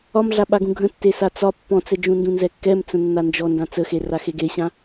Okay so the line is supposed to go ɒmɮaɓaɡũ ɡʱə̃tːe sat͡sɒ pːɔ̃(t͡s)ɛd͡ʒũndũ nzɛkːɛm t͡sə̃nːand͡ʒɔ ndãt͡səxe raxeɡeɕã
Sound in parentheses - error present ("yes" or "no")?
no